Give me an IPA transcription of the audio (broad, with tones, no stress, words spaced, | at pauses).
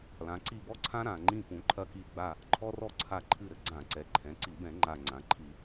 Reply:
lã˩˧ǀi˦˨bɔ˥ǀʰã˥ ɾã˨˩ŋ͡ǃĩ˦˨ pũ˩˥ǃʰɐ˦˨ki˦˨ɡ͡ba˦˨ | ǃʰɔ˥rɔ˥ ǀʰa˦˨ǃʰɨ˦˨ɾɘ˥ ɡ͡ǀã˧˩˧ǀɛ˩˧ ǃʰɛ̃˩˧ǀi˧˩˧ bɛ̃˧˩˧ŋ͡ǃa˨˩ ŋ͡ǀã˩˧ǃʰi˧˩˧